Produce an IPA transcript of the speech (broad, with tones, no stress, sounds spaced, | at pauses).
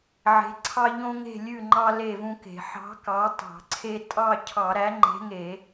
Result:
ʕ e̤˨˥ ǀʰ ɑ˦ ʎ õ˦ ŋ e̤˥˨ lʲ ʉ˥˨ ŋ͡ǃ ɑ˦ l e˥˨ v ũ˦ k e̤˧˩˧ ħ ɑ̤˨˥ k ɑ˨˥ tˤ ɑ̤˧˩˧ ǀʰ e˦ tʼ ɑ˥˨ cʰ ɑ˧˩˧ ɾ æ˨˥ ŋ͡ǃ e̤˨˥ ŋ e˧˩˧